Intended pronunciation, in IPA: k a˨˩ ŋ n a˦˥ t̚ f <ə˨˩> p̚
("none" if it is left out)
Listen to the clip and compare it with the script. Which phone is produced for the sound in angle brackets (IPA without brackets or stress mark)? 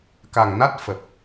ə˨˩